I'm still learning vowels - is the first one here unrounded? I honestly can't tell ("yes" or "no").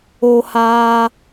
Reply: no